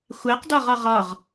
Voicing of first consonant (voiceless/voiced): voiceless